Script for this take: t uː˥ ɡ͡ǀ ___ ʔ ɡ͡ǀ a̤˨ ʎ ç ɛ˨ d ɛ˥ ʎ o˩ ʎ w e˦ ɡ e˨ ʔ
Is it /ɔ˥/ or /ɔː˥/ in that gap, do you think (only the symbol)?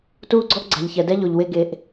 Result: ɔ˥